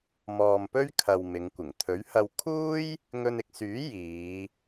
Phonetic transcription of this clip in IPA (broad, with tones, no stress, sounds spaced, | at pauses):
m ɔː˨ m p ɵ˥ ɥ kʰ ɐ˨ w m ɪ˨˧ ŋ kʷ ɪ˨˩ ŋ t̪ʰ ɵ˨˥ ɥ h ɐ˧ w kʰ uː˥ j | ŋ ɵ˧ n ɪ˧ k̚ s yː˨˥ j iː˨˧